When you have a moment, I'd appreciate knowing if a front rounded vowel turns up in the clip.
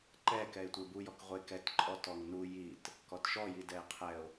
no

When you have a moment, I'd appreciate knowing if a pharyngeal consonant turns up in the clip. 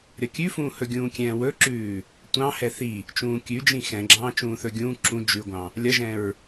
no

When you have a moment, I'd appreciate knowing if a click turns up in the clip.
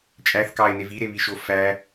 no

